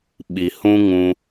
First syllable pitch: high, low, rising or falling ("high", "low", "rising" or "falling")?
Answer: low